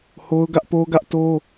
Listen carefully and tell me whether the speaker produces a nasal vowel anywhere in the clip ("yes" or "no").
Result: no